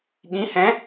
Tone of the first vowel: rising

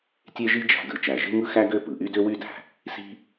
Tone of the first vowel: high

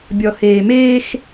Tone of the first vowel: low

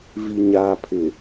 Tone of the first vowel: low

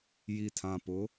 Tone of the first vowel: low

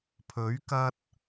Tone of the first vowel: rising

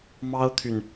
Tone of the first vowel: high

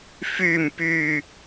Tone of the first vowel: low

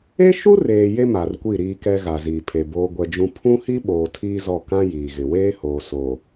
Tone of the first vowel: high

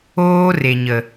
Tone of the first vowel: high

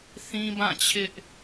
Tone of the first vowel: high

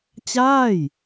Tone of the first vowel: falling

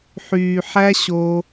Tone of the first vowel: low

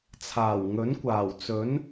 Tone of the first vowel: low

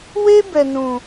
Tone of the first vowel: high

